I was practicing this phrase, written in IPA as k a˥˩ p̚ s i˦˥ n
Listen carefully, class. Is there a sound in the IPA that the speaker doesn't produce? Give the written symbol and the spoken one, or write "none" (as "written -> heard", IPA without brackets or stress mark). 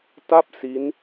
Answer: k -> t